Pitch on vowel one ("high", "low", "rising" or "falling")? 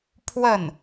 falling